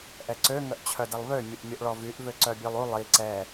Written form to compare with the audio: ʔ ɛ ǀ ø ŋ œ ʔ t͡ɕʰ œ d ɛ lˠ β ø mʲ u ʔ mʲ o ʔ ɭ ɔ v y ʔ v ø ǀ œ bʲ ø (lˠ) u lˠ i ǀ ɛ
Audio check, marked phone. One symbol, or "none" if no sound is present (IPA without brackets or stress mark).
lˠ